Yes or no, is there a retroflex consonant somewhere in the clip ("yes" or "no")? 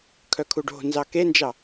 yes